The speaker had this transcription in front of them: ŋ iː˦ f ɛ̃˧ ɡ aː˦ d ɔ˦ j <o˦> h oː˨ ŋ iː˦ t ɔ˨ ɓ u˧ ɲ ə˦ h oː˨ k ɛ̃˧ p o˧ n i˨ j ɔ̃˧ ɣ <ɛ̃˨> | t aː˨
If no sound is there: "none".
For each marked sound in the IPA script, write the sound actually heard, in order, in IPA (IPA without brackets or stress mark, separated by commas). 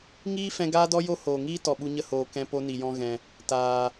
o˦, ɛ̃˨